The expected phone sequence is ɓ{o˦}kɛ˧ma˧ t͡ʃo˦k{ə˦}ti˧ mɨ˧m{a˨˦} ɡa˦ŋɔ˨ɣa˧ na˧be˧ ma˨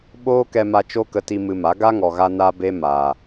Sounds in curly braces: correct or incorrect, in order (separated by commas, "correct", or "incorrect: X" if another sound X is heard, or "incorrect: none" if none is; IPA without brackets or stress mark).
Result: incorrect: oː˦, incorrect: ə˧, correct